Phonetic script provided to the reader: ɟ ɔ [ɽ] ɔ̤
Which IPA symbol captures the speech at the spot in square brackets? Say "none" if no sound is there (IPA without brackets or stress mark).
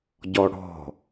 ɽ